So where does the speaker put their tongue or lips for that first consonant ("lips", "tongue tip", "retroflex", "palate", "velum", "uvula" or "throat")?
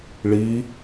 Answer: retroflex